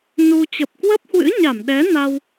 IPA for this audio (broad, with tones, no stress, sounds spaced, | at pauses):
n u˧ t͡ɕ ə˨˩ p̚ k w ə˦˥ p̚ h w ɨ̰˧˥ ɲ a˧˩ m ɗ ɛ˨˦ n a˧ w